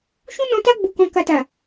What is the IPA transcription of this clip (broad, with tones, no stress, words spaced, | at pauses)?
ʃũ˦nɔ̃˧ta˦ ɡ͡bu˧kɔ̃˧ ka˧ta˨